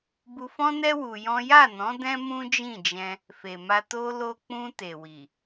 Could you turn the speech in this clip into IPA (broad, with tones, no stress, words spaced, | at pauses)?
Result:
bu˧fɔ̃˦nɛ˦ wu˧jɔ̃˦ ja˦˨nɔ̃˨˦ dɛ̃˦mũ˦d͡ʒĩ˦˨d͡ʒɛ̃˧ | fe˨ma˧ to˧lo˧k͡pũ˧ te˨wi˨